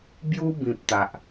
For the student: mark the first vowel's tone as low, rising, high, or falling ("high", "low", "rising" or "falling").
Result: high